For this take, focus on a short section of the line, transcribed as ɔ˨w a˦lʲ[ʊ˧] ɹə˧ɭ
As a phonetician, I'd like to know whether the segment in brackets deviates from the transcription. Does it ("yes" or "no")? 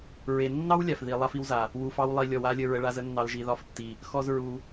yes